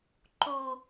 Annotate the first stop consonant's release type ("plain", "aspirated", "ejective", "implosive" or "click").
click